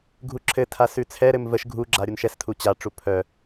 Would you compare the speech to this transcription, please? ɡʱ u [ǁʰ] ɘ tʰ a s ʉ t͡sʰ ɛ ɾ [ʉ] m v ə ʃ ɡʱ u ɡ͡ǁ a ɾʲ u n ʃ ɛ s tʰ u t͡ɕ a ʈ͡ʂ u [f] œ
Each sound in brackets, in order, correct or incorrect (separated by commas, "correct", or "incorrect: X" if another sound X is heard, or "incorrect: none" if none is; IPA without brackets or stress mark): correct, incorrect: ɘ, incorrect: pʰ